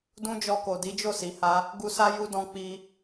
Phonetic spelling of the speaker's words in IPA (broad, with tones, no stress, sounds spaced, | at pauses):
d ũ˦ d͡ʒ ɔ˧ k o˨ d i˨˦ d͡ʒ o˦˨ s i˨ h a˧ | ɡ u˧ s a˦ j u˦ d ɔ̃˦ k͡p i˧